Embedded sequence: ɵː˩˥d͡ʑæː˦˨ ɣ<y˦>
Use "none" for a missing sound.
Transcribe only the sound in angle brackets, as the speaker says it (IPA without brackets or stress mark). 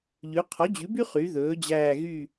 y˦˨